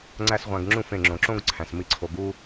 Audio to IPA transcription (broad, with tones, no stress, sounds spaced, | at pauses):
ŋ͡ǀ æ˦ s ʁʷ æ̃˧ ɡ ŋ͡ǁ ũ˦˨ f ẽ˨ ŋ͡ǁ õ˨ ǁ õ˦ ɡ ǀʰ æ̃˨ s m i˧ ǀʰ o˨ ɡ u˧